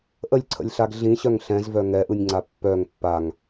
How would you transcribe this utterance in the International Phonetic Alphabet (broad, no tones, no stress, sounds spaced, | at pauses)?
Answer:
ʔ ə lʲ ǀʰ ə̰ lʲ ɬ a ɡ ɮ ĩ ɕ œ ŋ ɬ ɛ̃ z v œ ŋ ɛ ʔ ɯ nʲ ŋ͡ǀ a pː œ ŋ pː a ŋ